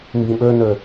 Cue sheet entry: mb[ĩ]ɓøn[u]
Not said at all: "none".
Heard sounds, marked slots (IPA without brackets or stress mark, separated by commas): ĩ, ø